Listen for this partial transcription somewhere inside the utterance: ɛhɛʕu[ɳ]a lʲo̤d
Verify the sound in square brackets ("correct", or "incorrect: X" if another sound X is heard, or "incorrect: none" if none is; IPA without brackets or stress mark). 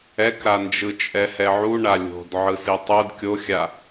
correct